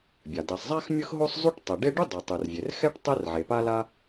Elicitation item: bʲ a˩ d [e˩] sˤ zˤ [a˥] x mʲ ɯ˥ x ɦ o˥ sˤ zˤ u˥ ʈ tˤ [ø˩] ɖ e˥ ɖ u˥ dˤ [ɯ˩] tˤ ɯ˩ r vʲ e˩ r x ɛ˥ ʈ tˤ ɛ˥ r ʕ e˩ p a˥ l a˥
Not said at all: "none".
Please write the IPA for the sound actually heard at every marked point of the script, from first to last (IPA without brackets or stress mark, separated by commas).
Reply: ɛ˩, a˥, ɛ˩, ɯ˩